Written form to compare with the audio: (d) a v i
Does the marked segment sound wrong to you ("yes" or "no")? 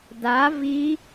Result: no